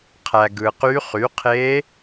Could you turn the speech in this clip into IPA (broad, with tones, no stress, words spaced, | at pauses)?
qʰæ˨ ɡɯ˨qy˧˥ χy˩˥qʰe˧˥